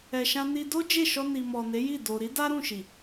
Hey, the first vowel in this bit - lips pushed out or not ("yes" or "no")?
no